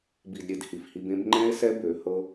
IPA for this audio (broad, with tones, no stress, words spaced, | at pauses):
bi˨dɾʲe˨d hi˨fhi˧bẽ˦b ŋ͡ǃɛ̃˦e̯sɛ˦ bø˨˦hɤ˦